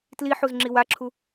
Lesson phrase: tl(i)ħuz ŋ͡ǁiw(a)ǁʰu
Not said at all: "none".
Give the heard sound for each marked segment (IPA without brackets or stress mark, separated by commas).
i, a